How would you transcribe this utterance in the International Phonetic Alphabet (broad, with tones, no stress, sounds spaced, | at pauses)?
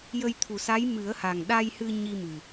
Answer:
j ə˧ j t̪ʰ u˨˩ s a˧˥ j m ɨ˨˩˦ ə̯ h a˨˩ ŋ ɗ a˧ j h ɨ˧ ɲ i˧ m ɨ˨˩